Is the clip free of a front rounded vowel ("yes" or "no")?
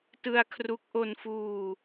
yes